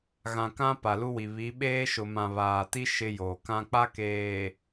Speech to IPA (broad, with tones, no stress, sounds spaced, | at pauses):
ɣ ã˨ k ã˦ p a˨ l u˦ w i˨ β i˨˦ ɓ eː˦ ʃ ʊ˨ m ã˨ β aː˨ t i˦ ʃ ɪ˦ j oː˨ k ã˦ k͡p a˦ k eː˨